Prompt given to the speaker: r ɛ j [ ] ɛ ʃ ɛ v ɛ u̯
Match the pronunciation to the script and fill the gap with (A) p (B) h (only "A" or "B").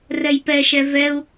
A